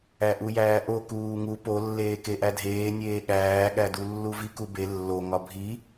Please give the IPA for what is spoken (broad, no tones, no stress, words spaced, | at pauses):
æʔujæːʔo kuːŋu polːeː keʔædʱeːnʲeː ɠæːɠædulːu vikube lːo ŋɒbʱi